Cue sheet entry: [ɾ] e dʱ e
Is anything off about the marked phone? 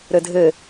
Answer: no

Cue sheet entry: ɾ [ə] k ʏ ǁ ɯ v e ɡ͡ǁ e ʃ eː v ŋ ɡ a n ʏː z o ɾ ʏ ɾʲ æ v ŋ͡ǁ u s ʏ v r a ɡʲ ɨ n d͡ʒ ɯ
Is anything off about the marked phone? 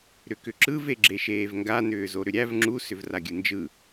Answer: yes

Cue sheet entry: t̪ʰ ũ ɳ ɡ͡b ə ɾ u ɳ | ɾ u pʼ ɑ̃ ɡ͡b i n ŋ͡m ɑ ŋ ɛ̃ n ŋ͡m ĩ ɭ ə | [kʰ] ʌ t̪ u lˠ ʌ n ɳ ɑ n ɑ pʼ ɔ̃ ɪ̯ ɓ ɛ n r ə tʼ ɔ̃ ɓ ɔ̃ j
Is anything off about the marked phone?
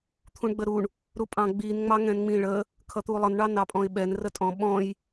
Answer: no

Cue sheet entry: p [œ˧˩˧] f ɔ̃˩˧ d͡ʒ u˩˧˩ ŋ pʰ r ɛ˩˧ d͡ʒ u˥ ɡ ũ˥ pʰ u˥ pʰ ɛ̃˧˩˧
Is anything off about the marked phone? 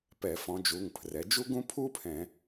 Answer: yes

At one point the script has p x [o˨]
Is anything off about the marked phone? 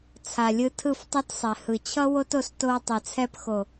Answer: no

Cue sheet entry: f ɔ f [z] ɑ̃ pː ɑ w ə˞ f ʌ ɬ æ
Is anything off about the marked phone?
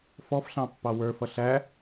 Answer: yes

